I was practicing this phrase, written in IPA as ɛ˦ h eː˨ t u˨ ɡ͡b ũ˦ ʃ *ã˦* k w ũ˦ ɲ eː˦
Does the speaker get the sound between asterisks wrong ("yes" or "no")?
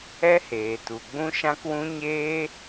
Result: no